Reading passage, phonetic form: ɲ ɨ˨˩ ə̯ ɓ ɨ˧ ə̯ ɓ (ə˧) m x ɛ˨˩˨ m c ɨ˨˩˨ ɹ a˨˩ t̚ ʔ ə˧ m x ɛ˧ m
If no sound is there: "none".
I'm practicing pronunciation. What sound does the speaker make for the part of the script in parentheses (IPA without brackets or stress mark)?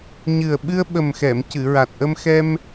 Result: ə˨˩